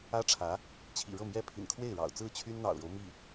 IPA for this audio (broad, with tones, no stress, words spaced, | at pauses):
ä˥ʈ͡ʂʰä˧˥ | t͡ɕʰḭ˨˩ɻɤ˥˩mjɛ˥pʰḭ˨˩n kʰwe˥˩ɪ̯ɻɑ̰˨˩ʊ̯ t͡sɹ̩˥˩t͡ɕʰy˥nn̪ɑ̰˨˩ʊ̯ɻo˦ʊ̯ mi˥˩